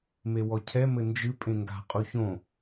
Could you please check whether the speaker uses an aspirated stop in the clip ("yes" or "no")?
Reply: yes